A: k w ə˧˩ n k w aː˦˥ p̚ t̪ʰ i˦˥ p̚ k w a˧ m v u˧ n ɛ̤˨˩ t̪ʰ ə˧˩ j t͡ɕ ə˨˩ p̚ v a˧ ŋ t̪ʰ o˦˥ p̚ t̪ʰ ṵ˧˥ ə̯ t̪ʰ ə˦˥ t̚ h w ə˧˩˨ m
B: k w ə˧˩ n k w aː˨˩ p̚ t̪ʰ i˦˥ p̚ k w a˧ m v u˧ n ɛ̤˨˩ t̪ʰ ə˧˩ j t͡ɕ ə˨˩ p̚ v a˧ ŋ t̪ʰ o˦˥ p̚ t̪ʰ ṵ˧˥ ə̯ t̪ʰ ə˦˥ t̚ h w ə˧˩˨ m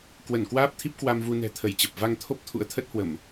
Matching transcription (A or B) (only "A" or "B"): A